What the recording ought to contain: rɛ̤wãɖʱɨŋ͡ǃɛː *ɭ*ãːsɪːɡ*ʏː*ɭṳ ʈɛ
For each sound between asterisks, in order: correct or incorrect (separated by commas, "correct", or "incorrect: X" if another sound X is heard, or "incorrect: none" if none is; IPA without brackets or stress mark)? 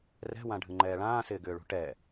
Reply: correct, correct